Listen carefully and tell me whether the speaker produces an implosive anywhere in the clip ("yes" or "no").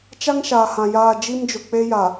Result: no